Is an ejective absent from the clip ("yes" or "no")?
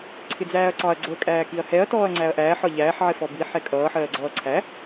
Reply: no